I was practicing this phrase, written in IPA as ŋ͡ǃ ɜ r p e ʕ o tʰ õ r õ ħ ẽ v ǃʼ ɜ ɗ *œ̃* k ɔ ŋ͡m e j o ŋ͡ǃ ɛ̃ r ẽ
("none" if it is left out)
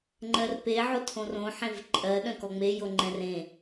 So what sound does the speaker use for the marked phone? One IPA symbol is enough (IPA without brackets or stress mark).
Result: œ̃